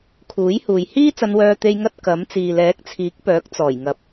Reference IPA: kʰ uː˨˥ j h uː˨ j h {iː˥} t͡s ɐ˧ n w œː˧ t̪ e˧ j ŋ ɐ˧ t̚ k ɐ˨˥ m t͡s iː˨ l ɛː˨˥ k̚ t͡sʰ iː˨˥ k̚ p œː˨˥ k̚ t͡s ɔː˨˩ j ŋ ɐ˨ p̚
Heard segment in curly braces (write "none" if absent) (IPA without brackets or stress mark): iː˥